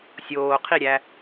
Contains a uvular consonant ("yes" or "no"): yes